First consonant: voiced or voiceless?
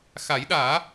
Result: voiceless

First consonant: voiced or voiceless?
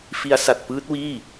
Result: voiceless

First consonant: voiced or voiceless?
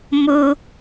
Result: voiced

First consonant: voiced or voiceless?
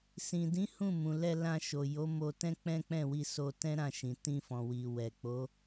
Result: voiceless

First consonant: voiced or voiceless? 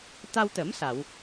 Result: voiceless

